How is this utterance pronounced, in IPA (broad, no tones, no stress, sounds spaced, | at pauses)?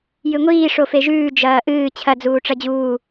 j ɨ ŋʷ iː ʂ o f e ʒ ʉː d͡ʒ ɐː ʔ ɨː t͡ɕʰ ɐ d͡z uː ʈ͡ʂ ɐ d͡ʑ uː